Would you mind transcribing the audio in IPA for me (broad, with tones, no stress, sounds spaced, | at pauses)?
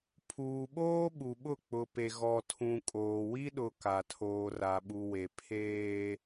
pʰ uː˨ ɓ oː˦ ɓ u˨ ɓ ʊ˦˨ k͡p ʊ˨ p e˨ ɣ ɔ˨ tʰ ũ˨ kʼ oː˨ w i˦ ɗ ʊ˨ k a˨ tʰ oː˨ r a˨ ɓ u˨ w e˨ pʰ eː˦